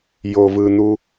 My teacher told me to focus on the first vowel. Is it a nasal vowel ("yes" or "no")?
no